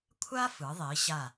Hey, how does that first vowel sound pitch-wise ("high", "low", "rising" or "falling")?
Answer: high